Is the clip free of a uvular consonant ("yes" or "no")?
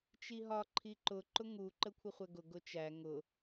no